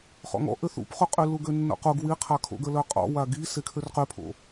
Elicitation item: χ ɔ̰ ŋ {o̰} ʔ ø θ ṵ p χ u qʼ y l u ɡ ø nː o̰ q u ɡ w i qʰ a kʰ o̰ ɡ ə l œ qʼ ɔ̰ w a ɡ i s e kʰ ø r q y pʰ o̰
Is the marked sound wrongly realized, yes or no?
yes